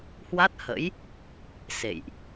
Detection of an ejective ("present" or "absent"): absent